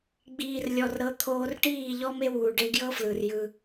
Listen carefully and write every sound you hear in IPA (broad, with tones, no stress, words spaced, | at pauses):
ɡ͡biː˨rlʲɔ˨rɾɤ˨˦ t̪ʰoː˧rʈiː˦˨ ʎɔ˦me˦wuː˨ ɖe˧ɡjɤ˦ flɯ˨rjɯ˧